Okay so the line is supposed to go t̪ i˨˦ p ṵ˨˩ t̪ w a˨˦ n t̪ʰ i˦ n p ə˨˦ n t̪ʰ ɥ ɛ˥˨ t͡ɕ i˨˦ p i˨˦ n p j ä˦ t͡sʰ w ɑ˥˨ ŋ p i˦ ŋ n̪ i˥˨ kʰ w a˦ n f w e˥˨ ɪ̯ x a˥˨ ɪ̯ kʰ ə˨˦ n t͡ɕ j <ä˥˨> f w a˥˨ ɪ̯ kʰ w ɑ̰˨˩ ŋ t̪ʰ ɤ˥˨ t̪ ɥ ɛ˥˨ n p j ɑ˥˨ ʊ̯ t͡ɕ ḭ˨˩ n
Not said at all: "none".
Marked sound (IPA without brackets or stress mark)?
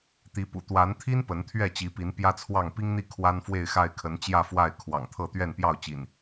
ä˥˨